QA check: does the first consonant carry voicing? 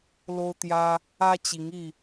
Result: yes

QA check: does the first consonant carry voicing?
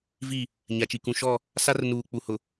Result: yes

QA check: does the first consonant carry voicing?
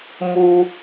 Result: yes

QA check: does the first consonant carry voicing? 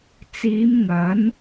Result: no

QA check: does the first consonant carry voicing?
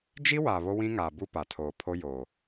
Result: yes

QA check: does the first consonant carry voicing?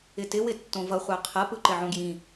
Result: no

